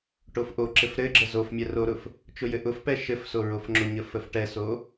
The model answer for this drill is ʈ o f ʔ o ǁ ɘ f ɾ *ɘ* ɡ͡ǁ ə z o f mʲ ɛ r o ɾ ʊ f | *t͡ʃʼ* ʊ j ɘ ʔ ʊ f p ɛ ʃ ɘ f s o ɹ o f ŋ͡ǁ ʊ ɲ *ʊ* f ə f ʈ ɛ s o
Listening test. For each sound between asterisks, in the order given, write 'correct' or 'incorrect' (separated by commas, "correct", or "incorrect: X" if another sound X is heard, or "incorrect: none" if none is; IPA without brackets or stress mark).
correct, incorrect: t͡ʃ, incorrect: ə